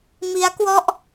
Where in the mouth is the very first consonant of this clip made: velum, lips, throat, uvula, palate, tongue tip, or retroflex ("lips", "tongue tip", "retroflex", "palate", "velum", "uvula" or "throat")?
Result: lips